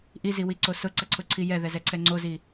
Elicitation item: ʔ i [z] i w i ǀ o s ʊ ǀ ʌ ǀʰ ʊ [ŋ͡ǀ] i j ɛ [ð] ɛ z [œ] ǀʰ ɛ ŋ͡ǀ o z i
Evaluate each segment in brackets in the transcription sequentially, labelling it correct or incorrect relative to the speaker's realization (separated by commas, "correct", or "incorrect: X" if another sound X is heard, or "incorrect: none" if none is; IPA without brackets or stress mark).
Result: correct, incorrect: ǀʰ, correct, incorrect: ɛ